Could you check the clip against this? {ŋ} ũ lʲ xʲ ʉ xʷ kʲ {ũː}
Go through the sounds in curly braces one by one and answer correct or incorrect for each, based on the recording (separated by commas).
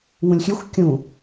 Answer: correct, incorrect